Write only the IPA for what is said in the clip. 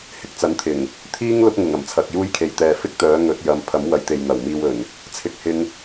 hɪ˧k̚t͡sɐ˨˥nt̪ʰɪ˨˩ŋ | t̪ʰiː˥ŋ lʊ˥k̚ŋʊ˨˩ŋ ɐ˨˩mt͡sʰɐ˨k̚ juː˥jkʰe˨j t̪ɛː˨fɪ˥k̚t̪œː˨˥ ŋɵ˨˥t̚jɐ˨˥m pʰɐ˨˥mwɐ˨jt̪e˨j n̪ɐ˨˩wmiː˧wɵ˨˩n | t͡sʰɪ˧k̚hɪ˧ŋ

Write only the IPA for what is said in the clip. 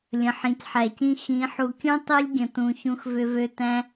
lʲə̃˨ħĩ˨cħæ˨cĩ˧ xĩ˨˦ ħu˨kʲũ˦ tˤi˦lʲɡʲə̃˨tũ˨ çũ˧xvʏ˧vø˧ tæ̃˦

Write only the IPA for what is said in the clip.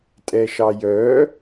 tʼɛʃɑjœ

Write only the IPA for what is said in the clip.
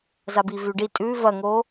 zabivʉɖi tʼʉ vɐŋo

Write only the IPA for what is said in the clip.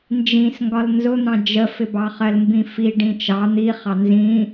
nd͡ʒĩs ŋɡɒlnzʊn̪ɑ̃ d͡ʒəfɪbɑ χɜlmbĩfi ɖĩt͡ʃɑ n̪iχɑ nzĩ

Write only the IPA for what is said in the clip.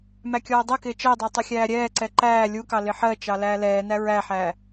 mækʲɔːdˤɜkɪː t͡ʃɜdˤɜ tˤɪxʲæːɾʲɛːǀɛ ǃæː lʲukɑ lɪħɜt͡ʃɑ læːlɛːnæ ɹæħæ

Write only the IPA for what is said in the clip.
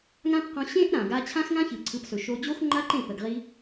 ŋã˦pqɔ̃˧ ɕẽ˦ʔ ɾã˨ɡa˧ t͡ɕʰã˦xŋã˦ çɯ˨ǀʰɯ˨˦psɵ˨ʃo˧ d͡ʑo˦xŋ͡ǃa˦ǃẽ˦˨ pə˨ɡʁi˧

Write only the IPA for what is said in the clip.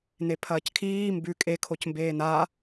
nepʰɐːckʰiː mbʉ kʼe kʰocmbeːnaː

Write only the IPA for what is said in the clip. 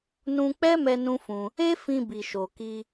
nũ˧k͡pɛ˦mɛ˧ nũ˦fũ˧ | e˦fĩ˧ bi˨ʃo˨ki˧

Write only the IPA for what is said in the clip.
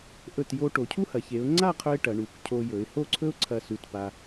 ʔɵ˧˩tjo˧ ʈo˩˧cʰu˥hɐ˩˧ çe˩˧ʊ̯ŋ͡ǀa˥˧qʰɵ˧ɪ̯ ʈɐ˩˧ɳu˩˧kcʰo˧ jɵ˩˧ɪ̯ho˥˧ǀʰɵ˥ʊ̯ǀʰɐ˧˩ sʉ˧˩tpa˧

